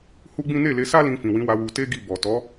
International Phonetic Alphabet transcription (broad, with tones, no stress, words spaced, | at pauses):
hu˦ɡ͡bĩ˦ ne˦˨le˧sa˦ lĩ˧fĩ˨wĩ˨˦wa˧ wu˧te˦ ɡi˦˨bɔ˨ tɔ˨˦